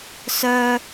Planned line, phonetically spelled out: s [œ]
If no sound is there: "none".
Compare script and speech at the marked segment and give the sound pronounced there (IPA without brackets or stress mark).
œ